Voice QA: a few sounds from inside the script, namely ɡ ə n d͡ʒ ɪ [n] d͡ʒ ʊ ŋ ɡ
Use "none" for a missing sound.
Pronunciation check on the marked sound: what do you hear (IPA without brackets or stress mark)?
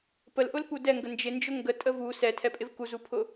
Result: n